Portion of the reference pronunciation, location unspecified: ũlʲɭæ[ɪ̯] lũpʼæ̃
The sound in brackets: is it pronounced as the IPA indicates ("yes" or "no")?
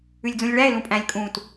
yes